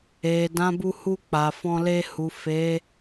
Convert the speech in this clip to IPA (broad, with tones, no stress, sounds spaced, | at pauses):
e˨ d ã˨˦ b u˧ h u˧ k͡p a˨ f ɔ̃˧ l e˧ h u˨ f e˨˦